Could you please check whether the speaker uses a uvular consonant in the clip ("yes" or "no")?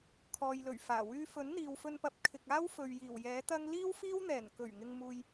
no